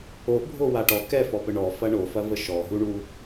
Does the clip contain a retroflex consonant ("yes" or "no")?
yes